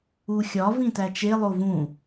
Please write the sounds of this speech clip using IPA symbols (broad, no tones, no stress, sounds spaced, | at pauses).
u xʲ ɒ v ĩ t æ t͡ʃ e lˠ o v ũ